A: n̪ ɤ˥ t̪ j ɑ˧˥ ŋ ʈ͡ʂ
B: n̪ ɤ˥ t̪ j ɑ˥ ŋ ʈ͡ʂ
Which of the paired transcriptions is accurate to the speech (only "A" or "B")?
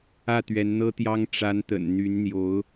B